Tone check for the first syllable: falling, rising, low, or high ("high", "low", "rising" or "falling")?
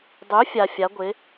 rising